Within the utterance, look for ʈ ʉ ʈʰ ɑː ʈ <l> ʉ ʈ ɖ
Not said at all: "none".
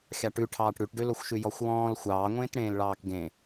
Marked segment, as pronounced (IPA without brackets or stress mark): ɽ